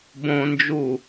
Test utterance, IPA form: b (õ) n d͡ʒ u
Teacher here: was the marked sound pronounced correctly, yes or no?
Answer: yes